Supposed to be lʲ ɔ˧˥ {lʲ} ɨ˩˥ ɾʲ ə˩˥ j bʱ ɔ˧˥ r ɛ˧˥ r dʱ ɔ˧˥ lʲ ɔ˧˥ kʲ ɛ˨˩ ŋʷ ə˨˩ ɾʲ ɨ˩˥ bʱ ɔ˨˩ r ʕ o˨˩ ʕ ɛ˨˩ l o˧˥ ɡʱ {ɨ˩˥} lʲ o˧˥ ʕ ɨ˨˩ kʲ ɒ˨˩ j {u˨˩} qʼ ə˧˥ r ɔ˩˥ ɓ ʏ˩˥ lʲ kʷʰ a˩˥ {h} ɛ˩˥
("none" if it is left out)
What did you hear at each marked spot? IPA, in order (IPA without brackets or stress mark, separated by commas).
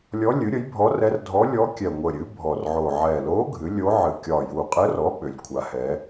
lʲ, ɨ˩˥, u˨˩, h